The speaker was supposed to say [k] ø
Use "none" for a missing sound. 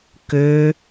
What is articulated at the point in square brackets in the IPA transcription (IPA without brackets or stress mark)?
k